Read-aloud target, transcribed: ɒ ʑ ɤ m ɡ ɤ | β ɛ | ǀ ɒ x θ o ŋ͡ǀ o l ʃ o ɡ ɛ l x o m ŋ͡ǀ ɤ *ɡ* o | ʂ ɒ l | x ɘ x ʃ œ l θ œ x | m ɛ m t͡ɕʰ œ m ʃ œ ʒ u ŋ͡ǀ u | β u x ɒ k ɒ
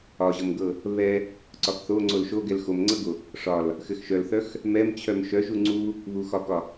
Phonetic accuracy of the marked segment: correct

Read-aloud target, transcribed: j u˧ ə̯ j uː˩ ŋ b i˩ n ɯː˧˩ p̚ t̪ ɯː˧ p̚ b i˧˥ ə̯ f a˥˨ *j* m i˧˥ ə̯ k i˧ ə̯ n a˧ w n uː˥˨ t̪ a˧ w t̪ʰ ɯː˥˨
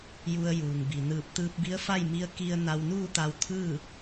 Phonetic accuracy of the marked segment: correct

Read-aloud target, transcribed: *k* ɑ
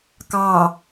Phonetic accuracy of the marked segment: correct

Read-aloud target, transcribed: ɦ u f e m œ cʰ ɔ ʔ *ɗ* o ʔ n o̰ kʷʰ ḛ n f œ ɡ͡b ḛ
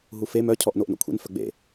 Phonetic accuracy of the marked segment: incorrect: n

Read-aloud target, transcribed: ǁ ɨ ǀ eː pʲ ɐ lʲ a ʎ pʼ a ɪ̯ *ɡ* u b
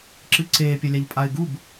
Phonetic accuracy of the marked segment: correct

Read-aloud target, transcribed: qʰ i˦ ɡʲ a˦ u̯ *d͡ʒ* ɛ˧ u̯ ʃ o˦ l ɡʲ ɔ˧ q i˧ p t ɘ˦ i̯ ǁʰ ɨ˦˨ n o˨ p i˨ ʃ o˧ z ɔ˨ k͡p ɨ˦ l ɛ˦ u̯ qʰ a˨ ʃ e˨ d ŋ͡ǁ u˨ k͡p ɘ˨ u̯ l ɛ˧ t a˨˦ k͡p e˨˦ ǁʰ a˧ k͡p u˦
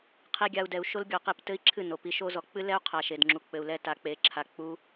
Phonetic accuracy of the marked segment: incorrect: d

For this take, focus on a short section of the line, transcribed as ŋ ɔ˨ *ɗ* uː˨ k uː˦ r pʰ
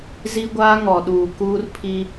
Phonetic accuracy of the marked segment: correct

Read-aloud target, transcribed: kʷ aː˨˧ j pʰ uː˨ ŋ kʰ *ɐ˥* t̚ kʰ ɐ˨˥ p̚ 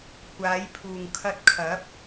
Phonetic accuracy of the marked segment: incorrect: ɐ˧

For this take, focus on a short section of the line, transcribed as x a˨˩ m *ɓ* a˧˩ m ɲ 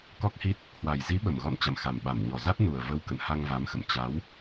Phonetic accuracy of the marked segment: correct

